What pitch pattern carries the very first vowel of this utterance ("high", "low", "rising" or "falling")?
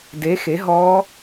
rising